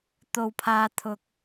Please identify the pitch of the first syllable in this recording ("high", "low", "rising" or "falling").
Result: low